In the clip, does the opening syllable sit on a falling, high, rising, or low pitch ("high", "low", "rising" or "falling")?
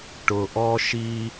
low